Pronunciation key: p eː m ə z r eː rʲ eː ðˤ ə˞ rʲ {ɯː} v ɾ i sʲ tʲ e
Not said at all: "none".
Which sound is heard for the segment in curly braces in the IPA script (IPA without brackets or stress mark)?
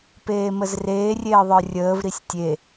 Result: əː